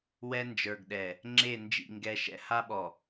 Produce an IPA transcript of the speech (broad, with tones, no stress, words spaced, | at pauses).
wɛ˦nd͡ʒə˞˨ɡɗɛ˨ | ŋ͡ǁe˦˨ nd͡ʒḭ˦˨ŋɡɛ˦ʃɛ̰˦ ha˦ɓɔ˨